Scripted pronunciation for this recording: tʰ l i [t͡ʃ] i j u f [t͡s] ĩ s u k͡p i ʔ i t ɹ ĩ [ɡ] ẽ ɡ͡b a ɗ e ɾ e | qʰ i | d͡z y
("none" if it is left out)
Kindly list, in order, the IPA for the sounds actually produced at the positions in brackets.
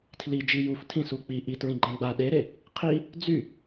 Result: d͡ʒ, tʰ, ɡ͡ǃ

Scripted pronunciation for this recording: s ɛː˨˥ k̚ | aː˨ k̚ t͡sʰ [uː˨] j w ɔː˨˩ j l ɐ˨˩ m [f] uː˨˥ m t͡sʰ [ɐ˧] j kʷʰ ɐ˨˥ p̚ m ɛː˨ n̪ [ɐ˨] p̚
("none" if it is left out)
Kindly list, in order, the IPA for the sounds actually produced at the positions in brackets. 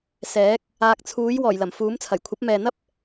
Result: uː˨˥, f, ɐ˨˩, ɐ˥

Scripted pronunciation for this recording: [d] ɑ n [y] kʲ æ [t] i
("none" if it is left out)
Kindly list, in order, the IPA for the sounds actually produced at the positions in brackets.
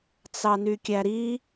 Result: t͡s, y, ɾ

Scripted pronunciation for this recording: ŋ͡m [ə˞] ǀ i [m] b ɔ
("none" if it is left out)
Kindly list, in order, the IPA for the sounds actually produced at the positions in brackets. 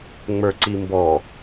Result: ə˞, m

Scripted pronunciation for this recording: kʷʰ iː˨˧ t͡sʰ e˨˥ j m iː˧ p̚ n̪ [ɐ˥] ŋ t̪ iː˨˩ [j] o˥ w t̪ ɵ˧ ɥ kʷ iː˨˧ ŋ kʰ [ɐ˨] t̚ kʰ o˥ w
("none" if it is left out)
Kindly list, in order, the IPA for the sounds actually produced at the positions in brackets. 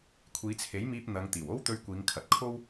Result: ɐ˨˧, w, ɐ˨

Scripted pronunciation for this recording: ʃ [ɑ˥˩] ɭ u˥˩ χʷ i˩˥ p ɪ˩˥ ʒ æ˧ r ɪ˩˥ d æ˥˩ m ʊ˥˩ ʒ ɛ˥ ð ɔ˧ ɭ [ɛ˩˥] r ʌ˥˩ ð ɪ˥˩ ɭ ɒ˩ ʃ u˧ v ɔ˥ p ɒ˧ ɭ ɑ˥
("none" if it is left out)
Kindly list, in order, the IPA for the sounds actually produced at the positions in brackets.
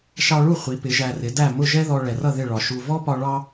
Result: ɑ˧, ɛ˩

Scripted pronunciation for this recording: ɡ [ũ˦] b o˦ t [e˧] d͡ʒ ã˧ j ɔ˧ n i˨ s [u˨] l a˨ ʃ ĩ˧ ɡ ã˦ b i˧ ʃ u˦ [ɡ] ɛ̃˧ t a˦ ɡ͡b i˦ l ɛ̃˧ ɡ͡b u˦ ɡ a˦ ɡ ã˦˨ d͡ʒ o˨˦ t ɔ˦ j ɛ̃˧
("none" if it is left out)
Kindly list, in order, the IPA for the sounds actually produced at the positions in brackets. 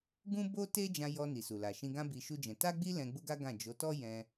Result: ũ˦, e˦, u˨, d͡ʒ

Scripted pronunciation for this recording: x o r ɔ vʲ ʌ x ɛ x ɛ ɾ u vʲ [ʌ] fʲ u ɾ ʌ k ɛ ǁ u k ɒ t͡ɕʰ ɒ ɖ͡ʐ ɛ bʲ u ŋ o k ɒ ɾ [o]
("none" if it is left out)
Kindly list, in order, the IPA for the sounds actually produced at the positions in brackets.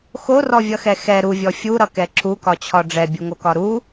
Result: ɔ, u

